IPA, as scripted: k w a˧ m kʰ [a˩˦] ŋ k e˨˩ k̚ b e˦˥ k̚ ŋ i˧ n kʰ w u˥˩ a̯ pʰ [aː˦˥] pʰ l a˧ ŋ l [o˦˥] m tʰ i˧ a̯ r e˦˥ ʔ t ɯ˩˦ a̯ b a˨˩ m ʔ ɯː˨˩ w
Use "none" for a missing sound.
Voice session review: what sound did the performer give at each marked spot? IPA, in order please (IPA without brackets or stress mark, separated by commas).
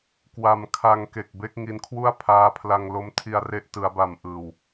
a˧, aː˦˥, o˦˥